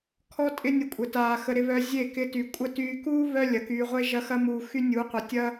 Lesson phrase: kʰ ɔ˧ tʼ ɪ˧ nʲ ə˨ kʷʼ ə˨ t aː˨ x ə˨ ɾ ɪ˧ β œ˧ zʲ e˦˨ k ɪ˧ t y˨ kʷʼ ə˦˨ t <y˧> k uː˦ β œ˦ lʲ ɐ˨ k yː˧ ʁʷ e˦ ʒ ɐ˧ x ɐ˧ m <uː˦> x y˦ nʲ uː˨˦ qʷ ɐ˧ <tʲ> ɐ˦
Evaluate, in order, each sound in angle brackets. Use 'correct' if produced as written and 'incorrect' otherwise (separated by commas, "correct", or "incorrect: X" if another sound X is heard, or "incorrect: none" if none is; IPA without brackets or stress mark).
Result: incorrect: yː˧, incorrect: uː˨, correct